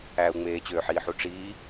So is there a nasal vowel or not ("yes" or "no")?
no